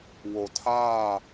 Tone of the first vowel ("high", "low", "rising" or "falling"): low